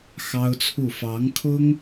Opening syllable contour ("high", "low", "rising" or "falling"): high